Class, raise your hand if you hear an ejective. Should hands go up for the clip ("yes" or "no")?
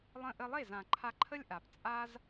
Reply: yes